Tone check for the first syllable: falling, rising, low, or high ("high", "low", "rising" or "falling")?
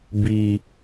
low